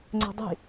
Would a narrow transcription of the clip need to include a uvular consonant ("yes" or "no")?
no